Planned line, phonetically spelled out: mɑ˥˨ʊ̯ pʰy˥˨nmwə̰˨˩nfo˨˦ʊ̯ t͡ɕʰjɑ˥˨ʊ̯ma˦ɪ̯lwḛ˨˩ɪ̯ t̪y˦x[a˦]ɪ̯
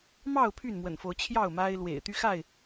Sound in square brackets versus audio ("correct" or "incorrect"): incorrect